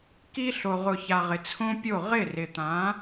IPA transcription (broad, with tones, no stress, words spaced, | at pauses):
ki˧ɬo˨ʁʊ˨ça˨ ʁɪ˨t͡sʰõ˦pʲo˦˨ ʁɪ˦˨rɪ˨t̪ã˨˦